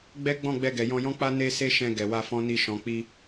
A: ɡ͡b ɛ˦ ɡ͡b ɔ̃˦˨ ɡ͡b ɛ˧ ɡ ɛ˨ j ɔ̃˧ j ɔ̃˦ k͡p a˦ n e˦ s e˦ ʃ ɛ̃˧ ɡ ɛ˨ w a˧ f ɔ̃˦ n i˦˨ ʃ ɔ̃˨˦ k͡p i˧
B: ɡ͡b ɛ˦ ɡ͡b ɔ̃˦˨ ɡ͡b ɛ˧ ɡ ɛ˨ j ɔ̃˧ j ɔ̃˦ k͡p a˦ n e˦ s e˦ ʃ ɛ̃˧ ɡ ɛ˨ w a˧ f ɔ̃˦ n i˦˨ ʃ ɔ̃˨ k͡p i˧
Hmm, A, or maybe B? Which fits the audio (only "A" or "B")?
B